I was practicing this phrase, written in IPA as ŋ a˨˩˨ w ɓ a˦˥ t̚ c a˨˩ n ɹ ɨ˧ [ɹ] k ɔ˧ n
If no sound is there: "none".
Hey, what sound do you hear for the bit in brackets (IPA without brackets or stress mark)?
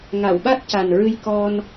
j